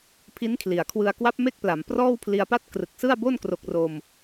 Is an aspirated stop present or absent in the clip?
present